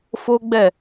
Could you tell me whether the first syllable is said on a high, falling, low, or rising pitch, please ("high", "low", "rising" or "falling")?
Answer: high